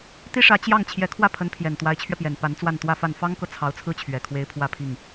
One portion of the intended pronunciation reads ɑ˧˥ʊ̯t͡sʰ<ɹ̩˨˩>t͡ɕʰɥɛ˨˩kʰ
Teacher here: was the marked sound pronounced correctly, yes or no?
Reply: no